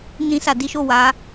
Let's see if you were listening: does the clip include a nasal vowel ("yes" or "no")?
yes